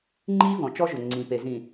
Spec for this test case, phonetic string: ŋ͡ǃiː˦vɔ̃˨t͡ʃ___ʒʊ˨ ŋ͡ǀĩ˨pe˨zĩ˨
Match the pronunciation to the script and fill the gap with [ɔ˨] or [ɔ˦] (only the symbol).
ɔ˦